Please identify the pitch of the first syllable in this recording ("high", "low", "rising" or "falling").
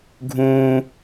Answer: high